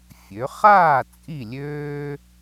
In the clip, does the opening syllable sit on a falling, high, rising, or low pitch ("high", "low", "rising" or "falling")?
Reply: rising